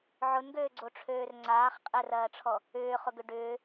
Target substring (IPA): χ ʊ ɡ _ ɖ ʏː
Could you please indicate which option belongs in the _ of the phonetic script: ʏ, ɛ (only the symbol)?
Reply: ʏ